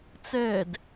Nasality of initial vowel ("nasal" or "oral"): oral